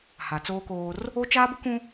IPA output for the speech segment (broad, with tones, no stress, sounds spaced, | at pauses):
h a˨ t͡s oː˦ k oː˦ r | o˦ t͡ʃ aː˦ b ʊ˦ k ũ˦